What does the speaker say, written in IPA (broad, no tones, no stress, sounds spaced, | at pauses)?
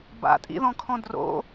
b a̰ tʼ ḭ ð ɔ̃ kʰ ɔ̃ d r o̰